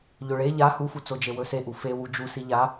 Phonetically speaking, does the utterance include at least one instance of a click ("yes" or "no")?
no